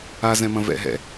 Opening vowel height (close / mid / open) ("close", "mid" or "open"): open